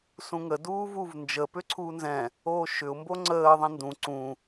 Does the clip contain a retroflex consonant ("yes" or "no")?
no